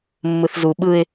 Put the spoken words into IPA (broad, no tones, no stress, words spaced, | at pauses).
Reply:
mːɯθzu ɓɯɪ̯